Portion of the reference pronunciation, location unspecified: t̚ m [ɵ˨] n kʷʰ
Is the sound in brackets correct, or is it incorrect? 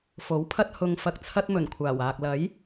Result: incorrect